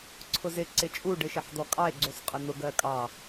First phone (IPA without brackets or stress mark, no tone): ǀʰ